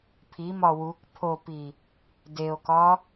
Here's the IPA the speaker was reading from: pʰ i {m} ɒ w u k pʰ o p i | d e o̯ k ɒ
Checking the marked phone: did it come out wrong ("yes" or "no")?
no